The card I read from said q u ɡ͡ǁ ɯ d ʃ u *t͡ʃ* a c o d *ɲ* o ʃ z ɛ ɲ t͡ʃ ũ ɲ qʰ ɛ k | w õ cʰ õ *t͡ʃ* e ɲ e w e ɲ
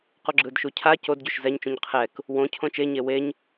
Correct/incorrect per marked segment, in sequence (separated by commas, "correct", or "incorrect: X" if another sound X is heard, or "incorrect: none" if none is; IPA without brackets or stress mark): incorrect: cʰ, incorrect: ɟ, correct